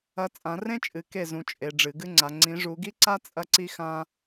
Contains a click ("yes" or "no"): yes